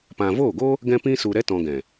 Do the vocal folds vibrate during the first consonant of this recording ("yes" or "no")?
no